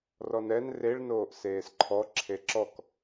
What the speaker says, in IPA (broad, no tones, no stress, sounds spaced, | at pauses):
r ɔ n ɛ n r e ɭ n oː ʔ s eː s ǃʰ ɔ ǁʰ e ǁ ɔ k